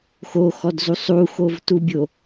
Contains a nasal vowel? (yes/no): no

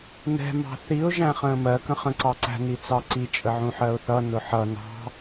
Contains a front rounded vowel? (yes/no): no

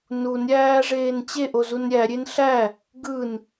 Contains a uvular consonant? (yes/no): no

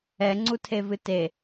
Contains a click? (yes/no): yes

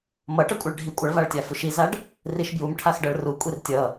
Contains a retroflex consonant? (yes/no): yes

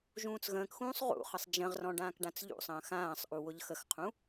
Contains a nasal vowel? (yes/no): yes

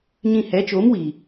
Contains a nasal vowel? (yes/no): yes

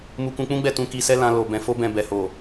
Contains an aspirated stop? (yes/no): no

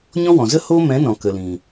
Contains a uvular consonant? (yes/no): no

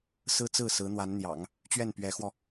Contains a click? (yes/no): no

